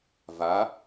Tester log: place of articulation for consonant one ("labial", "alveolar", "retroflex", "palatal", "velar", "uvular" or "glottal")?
labial